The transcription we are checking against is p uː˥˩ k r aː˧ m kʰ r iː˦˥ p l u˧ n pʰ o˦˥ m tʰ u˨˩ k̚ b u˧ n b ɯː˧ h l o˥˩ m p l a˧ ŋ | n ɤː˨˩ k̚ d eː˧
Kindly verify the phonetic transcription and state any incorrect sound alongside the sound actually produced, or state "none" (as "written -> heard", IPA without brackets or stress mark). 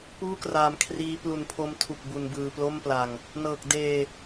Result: h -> p